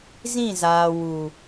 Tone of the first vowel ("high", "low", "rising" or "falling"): falling